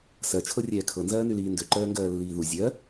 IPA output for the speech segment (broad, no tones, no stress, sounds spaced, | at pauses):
s ɜ t͡ʃʰ ɤ rʲ ɛː kʰ ɤ n z ɜː n y l iː n d ø ǃ ɜː ŋ ɡ ɜː lː iː ð u zʲ ɜ